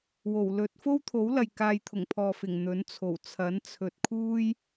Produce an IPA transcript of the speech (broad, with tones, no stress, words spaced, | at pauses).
wo˨˩wlɵ˨˥t̚ fo˥wt̪ʰo˨˥wlɐ˨j kaː˧jt̪ʰʊ˨˩ŋpʰɔː˨fɪ˨˩ŋ n̪ɵ˨˥nt͡sʰo˨˩w t͡sʰɐ˨˥nt͡sʰɵ˨t̚ kʰuː˥j